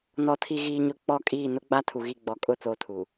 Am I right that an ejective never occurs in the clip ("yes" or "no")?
no